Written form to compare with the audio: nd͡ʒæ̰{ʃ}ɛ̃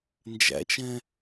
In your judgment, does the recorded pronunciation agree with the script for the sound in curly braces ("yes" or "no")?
no